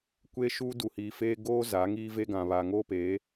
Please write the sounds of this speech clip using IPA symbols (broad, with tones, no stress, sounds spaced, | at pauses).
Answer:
kʷ eː˦ ʃ uː˦ d u˨ h iː˨ f eː˦ ɡ oː˦ z a˨˦ ŋ iː˦ v e˦ ɡ ã˨ β a˨ ŋ oː˦ p eː˨˦